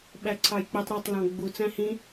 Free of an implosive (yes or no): no